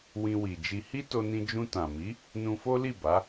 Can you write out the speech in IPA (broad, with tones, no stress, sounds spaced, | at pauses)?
w ĩ˧ w i˨ d͡ʒ i˧ h i˦ t o˧ n ĩ˧ d͡ʒ ũ˧ t ã˨ m i˨˦ | n ũ˧ f o˦ l i˦˨ b a˨˦